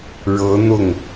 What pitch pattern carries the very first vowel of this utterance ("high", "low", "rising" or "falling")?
rising